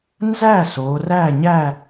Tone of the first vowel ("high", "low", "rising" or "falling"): falling